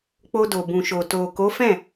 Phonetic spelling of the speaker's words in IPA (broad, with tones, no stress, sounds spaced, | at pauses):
k͡p o˧ d o˨ b ũ˨ ʃ o˨ t o˨ k o˨˦ f ɛ̃˦˨